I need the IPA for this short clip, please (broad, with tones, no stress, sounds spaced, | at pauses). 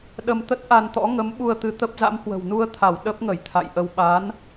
ɗ ə˧ m t̪ ə˦˥ t̚ ʔ a˧ n t̪ ɔ̰˧˥ ŋ ə˨˦ m ɓ u˧ ə̯ t̪ ɨ˨˦ t̪ ə˦˥ p̚ z a̰˧˥ m h w ə̤˨˩ w n u˧ ə̯ t̪ʰ a˧˩ w ɗ ə˦˥ p̚ ŋ ə˧˩ j t̪ʰ a̰˧˨ j ʔ ə˧ w ɓ a˨˦ n